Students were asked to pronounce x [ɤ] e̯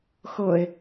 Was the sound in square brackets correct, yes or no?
yes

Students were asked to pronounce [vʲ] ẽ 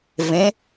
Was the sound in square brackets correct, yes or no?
no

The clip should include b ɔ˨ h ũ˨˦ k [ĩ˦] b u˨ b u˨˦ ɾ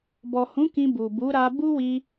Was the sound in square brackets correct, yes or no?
no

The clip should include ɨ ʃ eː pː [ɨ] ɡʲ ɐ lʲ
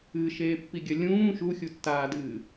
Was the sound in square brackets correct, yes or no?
no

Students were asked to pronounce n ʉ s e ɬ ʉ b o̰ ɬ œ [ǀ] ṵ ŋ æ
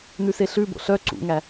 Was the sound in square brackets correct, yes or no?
yes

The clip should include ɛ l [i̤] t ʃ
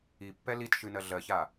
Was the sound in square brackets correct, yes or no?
no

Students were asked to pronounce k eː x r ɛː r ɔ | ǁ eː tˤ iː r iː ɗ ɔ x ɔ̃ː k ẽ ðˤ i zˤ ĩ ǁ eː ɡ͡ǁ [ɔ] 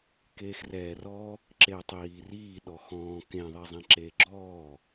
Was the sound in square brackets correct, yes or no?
no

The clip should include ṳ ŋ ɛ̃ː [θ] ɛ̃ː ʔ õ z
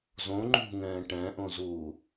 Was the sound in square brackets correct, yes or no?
no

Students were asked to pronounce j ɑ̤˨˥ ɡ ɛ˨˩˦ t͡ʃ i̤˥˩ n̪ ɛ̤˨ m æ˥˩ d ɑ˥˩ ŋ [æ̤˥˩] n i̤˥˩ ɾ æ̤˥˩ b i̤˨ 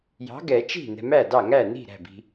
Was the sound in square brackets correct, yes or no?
no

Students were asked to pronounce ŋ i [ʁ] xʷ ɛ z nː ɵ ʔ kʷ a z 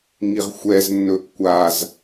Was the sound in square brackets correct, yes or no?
yes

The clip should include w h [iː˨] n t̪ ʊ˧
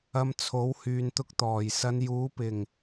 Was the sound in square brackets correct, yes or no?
no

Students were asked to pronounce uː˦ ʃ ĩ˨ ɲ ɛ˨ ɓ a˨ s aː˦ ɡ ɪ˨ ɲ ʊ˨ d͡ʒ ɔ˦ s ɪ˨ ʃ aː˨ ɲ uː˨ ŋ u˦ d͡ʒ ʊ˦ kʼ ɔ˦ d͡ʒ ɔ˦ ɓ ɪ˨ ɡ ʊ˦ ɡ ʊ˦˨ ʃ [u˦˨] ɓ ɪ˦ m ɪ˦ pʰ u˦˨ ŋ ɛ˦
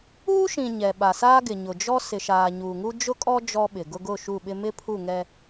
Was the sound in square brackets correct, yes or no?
yes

